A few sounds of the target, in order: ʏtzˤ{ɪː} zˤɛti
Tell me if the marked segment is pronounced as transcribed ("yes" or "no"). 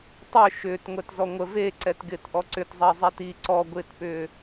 no